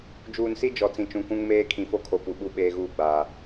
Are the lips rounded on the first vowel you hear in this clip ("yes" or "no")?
yes